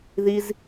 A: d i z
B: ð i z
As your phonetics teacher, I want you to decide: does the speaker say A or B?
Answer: B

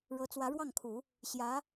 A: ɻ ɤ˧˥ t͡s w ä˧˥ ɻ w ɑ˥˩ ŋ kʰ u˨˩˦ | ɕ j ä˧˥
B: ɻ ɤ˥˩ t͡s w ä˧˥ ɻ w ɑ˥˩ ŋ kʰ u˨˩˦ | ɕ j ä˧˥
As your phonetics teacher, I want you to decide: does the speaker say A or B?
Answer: A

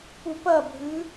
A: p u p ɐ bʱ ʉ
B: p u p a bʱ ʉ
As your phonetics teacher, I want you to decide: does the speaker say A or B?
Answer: A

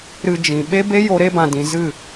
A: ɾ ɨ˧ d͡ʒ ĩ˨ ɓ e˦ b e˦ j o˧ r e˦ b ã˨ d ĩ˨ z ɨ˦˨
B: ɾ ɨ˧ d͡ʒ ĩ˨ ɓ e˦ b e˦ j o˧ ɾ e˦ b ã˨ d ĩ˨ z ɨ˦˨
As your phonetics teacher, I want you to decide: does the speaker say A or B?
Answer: B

